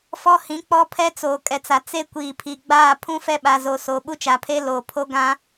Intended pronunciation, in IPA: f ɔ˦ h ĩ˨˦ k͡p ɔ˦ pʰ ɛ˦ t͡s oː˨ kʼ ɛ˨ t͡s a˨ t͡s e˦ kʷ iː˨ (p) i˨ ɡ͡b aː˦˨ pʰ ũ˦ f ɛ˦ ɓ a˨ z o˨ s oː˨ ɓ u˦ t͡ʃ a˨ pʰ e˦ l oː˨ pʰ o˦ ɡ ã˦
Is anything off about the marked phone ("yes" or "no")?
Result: yes